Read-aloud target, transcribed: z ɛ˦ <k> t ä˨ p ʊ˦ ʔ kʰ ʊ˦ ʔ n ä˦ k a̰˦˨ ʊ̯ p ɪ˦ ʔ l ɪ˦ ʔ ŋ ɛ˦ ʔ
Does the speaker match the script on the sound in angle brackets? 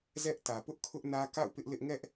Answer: no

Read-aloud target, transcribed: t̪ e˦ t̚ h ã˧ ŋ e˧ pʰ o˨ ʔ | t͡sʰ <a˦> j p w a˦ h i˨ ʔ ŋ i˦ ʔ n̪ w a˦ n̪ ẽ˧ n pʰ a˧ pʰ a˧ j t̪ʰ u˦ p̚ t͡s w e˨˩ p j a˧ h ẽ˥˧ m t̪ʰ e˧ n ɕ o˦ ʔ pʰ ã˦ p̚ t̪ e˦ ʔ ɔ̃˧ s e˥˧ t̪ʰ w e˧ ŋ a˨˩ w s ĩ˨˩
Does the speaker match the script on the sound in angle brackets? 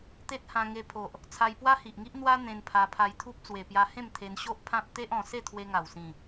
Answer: no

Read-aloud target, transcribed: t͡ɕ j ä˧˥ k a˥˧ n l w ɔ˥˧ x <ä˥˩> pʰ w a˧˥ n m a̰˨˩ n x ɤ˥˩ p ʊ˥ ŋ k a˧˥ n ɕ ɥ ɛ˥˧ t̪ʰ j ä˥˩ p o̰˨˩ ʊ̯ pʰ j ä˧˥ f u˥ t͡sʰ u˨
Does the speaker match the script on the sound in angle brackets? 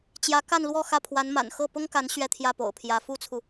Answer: yes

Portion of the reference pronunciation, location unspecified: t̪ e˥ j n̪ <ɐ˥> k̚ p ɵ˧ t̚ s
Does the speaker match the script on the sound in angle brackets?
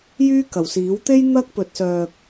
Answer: yes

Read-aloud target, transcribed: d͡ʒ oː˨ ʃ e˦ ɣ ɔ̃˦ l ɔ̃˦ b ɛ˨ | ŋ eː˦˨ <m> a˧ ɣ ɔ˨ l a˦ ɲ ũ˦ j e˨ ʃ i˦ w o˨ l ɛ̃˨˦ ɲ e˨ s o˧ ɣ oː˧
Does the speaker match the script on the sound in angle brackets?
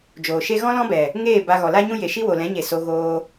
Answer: no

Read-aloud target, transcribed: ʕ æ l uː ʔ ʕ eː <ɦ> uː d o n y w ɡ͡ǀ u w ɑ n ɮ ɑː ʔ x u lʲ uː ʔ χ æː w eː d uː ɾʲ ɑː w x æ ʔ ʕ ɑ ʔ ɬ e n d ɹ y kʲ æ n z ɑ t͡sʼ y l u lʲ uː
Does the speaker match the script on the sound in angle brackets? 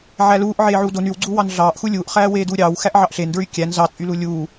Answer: no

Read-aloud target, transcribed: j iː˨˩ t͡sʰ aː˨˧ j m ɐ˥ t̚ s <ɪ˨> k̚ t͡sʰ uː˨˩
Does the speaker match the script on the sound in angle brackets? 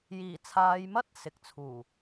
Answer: yes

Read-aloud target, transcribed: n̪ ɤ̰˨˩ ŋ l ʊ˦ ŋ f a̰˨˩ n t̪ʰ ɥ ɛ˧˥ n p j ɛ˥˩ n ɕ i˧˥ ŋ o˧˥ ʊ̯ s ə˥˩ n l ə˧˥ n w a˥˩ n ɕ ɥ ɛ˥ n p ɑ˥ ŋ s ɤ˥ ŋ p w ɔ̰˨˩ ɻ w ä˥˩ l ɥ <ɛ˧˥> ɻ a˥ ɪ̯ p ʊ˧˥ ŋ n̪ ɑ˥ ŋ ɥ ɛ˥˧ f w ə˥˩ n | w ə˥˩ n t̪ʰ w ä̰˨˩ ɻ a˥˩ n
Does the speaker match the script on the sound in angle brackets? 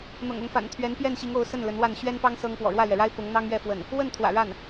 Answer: no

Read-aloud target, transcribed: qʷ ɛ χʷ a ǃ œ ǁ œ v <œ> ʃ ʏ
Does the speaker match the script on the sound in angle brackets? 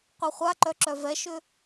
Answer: no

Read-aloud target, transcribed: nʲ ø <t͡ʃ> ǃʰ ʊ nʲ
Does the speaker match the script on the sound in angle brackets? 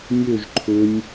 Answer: no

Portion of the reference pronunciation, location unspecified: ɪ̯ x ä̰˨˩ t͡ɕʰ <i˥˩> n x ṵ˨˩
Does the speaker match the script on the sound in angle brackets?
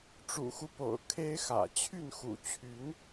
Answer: no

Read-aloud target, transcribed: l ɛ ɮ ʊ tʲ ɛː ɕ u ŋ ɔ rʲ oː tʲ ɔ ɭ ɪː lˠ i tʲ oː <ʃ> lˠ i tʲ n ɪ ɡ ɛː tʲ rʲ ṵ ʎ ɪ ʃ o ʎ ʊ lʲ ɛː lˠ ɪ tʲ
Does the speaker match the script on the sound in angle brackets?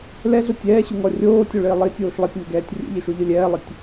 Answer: yes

